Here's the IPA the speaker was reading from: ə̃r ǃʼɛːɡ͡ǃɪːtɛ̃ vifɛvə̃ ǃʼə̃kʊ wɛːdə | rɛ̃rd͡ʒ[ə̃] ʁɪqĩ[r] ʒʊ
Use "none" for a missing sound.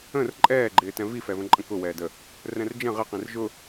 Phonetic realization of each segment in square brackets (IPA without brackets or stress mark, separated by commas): ə̃, r